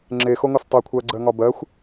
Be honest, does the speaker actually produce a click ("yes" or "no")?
yes